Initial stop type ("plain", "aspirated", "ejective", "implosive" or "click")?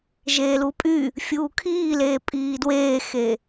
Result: ejective